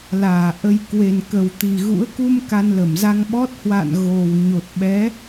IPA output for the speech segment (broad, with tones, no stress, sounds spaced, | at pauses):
l aː˧˩ ʔ ə˧ j k w e˨˩ n k ə˨˩ w t̪ i˨˩ ɣ ṵ˧˥ ə̯ k u˧ m k a˧ n l ə˧˩ m z a˧ ŋ ɓ ɔ˦˥ t̚ h w a̰˧˨ n ɣ o˨˩ w ɲ o˨˩ t̚ ɓ ɛ˨˦